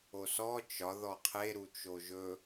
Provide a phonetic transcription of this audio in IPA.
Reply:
o s ɔ t͡ʃ ɒ ð ɔ qʰ e ɾ u t͡ʃ o ʒ ɵ

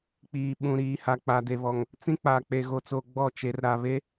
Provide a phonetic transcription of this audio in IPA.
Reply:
k͡p iː˨ ɓ ũ˨ ɾ iː˨ h a˨ k͡p a˨ d e˨ β ɔ˨ ŋ | t͡s ĩ˦ k͡p a˨ k͡p e˨ ɣ o˨ t͡s o˨ ɡ͡b ɔ˦˨ t͡ʃ e˨˦ r ɾ a˨ β e˦

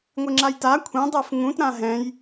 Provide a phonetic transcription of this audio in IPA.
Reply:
ŋʷ ɪ ŋ͡ǁ a j t a kʷʰ ɛ̃ dˤ ɛ f ŋ ũ t ɾ ã ɦ ɛ̃ j

